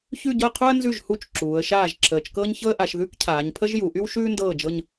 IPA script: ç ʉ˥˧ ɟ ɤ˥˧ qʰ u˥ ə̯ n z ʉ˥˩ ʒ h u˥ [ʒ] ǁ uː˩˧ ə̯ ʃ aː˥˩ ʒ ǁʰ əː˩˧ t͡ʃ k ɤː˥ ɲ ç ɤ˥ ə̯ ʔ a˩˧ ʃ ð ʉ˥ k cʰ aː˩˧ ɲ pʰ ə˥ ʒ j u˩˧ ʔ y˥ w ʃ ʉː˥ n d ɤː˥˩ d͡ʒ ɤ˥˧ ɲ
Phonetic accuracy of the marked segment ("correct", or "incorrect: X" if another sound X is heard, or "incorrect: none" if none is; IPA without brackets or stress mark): incorrect: t͡ʃ